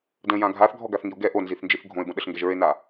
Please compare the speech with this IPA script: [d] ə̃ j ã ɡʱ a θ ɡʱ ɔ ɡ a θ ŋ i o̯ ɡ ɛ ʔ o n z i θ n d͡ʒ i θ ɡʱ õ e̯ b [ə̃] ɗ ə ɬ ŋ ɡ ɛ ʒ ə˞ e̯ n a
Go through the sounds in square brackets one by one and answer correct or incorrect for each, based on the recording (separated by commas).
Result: correct, correct